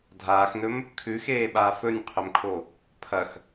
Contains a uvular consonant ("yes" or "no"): yes